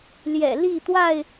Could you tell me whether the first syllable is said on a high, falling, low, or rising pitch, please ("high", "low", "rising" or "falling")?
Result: low